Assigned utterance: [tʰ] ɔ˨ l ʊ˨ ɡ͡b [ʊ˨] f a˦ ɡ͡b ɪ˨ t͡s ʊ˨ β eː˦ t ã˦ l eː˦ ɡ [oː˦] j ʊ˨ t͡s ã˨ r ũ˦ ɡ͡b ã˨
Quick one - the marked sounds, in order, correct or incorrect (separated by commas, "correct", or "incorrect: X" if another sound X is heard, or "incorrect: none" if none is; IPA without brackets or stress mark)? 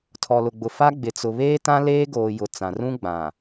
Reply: correct, correct, incorrect: oː˨